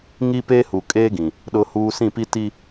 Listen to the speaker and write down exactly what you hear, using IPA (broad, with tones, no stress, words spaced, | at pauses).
ŋi˦peː˦hu˨ kʼeː˦ɡĩ˨ | ɗʊ˦huː˦ sĩ˦˨pi˦ ti˦